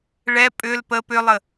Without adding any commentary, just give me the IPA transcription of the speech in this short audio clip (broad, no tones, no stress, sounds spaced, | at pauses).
ɭ ɛ pʼ ʏ l p ə p ʏ lˠ ə